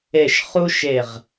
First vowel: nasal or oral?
oral